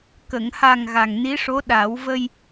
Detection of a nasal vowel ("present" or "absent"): absent